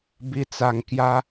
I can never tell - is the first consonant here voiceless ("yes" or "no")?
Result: no